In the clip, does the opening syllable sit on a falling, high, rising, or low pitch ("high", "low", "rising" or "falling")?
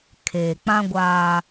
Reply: low